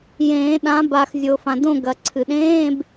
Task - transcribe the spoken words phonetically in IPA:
jẽː˨˩˦ɗã˨˦ba˨x zʲo˨fã˨dõ˥˨ ɡɐ˨˩˦ǀʰɨ˨ ɗẽː˧˥˧b

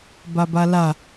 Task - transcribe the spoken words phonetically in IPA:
babala

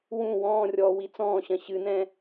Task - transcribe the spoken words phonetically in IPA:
wũ wɔ̃ːrʲɔː wit͡sɔ̃ːɕɐ̃ ɕɨnɛ̃

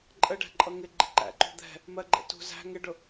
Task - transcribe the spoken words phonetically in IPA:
ǃʼəɖæ̤ǃʼʌ ŋɪɡ͡ǃɪ ǃæ̰ǃṳ d̪ɛ̤ | mɜɡ͡ǃɛ̰ tṳ zæ̤ ŋɪɖʊ

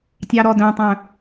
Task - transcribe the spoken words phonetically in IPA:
tʲɑɾɔdœ̃tˤœ̃

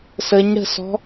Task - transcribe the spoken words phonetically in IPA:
səɲɽə̤sɔ̤

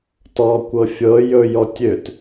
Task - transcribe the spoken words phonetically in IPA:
tɔkʷɤ fʲɤ jɵjɔ tʲøt

